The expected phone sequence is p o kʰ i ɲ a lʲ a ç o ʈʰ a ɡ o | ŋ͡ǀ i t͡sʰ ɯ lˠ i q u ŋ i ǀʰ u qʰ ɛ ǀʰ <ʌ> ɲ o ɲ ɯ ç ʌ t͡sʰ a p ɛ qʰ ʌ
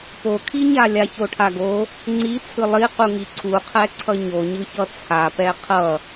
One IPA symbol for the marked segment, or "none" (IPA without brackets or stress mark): ʌ